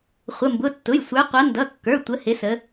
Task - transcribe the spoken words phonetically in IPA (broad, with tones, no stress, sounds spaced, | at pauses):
χʷ ə˩˧˩ m b ʊ˩˧˩ tː ʊ˩˧˩ j sʷ ə˞˨˦ qʷ ʌ˨˦ n d ʌ˩˧˩ kː ə˞˩˧˩ tʷ ə˨˦ h ɪ˨˦ s ə˨˦